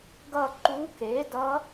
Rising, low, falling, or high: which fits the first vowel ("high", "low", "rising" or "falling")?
falling